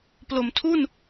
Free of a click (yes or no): yes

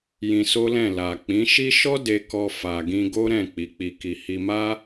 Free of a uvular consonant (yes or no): yes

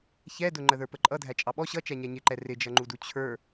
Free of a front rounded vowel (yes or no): yes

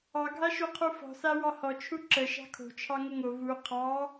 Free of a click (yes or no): no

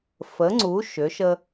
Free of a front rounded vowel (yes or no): no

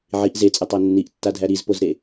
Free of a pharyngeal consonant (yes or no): no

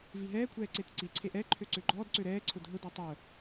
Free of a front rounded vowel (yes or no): no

